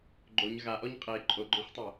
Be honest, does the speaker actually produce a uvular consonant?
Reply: yes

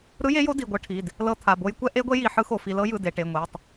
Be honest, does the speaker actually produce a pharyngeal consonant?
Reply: yes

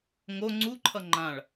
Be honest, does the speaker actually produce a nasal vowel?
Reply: yes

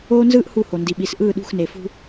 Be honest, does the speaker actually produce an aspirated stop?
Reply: no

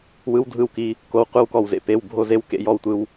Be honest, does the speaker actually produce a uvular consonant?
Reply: yes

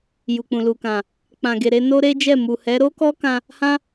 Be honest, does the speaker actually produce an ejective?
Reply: no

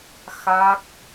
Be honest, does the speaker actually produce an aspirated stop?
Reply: no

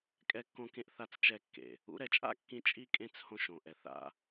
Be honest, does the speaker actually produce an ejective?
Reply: yes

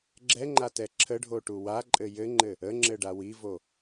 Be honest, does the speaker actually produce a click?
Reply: yes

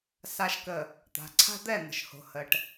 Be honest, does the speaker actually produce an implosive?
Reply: no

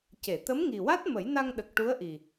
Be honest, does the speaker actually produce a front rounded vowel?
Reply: no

